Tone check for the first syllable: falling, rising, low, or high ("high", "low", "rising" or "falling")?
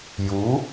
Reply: rising